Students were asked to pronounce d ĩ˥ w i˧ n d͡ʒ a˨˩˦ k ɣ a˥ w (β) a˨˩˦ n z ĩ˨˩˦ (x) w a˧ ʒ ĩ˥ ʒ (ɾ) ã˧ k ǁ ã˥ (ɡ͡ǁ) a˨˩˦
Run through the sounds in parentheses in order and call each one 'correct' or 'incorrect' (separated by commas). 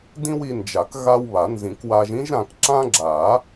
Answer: correct, incorrect, correct, correct